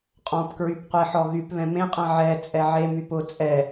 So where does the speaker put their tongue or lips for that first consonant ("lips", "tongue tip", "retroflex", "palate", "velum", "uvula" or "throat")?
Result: uvula